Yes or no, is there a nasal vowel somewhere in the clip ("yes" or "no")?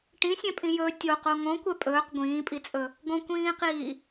yes